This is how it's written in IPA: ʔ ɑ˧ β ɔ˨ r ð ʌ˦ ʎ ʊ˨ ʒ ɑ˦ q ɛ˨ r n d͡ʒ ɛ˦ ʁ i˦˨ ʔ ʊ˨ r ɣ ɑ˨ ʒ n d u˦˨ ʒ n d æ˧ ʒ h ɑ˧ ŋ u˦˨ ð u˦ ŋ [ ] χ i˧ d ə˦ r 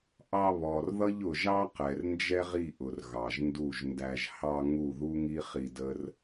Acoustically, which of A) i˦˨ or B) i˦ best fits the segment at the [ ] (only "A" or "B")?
B